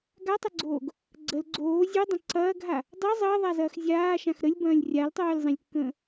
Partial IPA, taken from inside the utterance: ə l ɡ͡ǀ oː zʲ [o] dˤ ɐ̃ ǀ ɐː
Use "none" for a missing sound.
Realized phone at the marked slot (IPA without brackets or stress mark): o